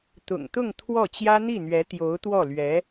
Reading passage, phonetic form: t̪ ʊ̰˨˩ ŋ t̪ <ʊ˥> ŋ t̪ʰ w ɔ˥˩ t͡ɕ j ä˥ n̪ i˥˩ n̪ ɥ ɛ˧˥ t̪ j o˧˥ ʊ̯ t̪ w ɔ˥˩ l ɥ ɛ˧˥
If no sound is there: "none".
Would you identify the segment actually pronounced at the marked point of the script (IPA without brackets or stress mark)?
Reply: ʊ˥˧